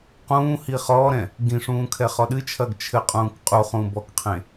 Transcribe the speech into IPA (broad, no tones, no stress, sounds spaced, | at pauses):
q ũː h i χ ɔː ɾ ɛ̃ | ɡ ĩ ʂ ũː kʰ ɛ χ ɔ ɗ ɨ t͡ʃʰ ɐː ɡ t͡ʃʰ ɘ qʼ ũː k qʼ u χ ũː b ɔ k qʰ ẽ